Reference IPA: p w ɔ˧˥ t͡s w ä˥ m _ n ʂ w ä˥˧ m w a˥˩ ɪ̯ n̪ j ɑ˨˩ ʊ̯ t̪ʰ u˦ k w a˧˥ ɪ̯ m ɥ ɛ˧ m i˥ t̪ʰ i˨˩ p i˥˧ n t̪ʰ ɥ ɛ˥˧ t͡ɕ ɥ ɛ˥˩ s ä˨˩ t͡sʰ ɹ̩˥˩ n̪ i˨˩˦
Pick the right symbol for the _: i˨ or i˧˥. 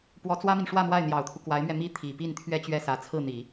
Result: i˨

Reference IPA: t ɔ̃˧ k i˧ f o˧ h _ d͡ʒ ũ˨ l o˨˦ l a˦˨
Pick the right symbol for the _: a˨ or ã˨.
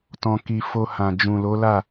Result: ã˨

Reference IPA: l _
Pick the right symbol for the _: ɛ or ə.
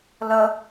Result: ə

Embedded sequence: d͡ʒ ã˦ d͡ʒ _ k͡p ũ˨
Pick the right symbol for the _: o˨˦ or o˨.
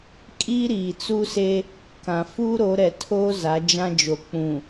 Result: o˨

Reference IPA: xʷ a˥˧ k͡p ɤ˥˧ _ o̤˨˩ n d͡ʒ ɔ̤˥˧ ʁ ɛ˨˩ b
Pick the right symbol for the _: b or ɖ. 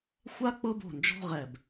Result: b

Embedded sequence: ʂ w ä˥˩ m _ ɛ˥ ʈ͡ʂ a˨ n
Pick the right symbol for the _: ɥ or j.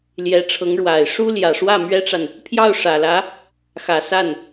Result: ɥ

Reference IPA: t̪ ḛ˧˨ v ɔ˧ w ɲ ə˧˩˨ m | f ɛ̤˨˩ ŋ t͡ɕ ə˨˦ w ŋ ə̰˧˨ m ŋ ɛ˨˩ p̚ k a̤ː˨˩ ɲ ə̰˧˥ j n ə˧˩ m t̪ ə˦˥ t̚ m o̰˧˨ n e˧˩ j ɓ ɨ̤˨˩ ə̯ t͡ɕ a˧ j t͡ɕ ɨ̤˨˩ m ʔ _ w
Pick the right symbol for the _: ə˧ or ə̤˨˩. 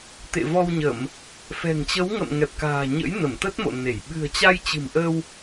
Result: ə˧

